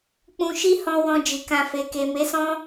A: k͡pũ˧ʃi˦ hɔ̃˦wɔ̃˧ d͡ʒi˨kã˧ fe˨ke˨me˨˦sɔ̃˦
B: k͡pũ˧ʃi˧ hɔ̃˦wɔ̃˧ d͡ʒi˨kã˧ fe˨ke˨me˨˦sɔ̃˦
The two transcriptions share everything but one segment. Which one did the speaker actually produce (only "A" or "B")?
A